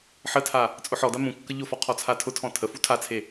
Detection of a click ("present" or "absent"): absent